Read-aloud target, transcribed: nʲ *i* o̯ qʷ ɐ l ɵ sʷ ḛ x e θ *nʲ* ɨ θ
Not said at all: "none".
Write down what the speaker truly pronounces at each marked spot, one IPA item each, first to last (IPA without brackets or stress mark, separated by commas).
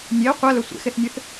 e, nʲ